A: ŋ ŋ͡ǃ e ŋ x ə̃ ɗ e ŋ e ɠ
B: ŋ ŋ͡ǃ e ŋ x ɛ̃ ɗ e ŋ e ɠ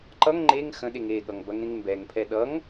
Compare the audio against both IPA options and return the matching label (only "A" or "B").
A